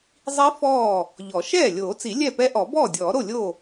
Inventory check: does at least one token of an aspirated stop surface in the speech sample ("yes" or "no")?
no